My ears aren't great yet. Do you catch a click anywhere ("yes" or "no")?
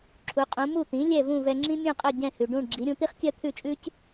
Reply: yes